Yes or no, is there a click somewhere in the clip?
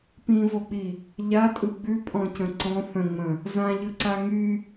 yes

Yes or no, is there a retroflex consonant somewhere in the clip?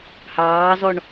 yes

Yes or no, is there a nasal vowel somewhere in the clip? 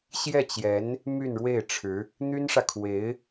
no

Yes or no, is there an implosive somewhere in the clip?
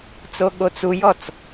yes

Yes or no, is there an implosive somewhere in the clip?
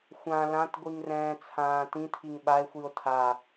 yes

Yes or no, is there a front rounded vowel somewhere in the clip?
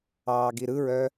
yes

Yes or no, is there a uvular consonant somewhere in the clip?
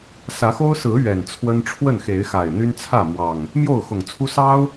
no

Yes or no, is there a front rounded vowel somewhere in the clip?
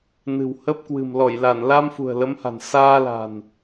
no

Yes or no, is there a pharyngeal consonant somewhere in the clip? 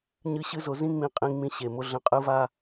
no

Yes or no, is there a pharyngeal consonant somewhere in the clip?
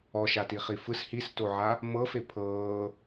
yes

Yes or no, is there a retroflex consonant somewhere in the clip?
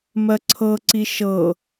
no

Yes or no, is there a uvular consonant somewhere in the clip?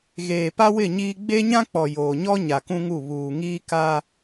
no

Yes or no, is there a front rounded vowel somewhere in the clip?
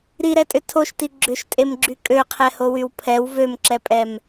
yes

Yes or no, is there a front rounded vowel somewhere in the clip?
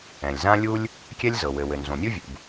no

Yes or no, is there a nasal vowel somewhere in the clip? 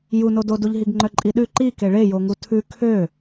no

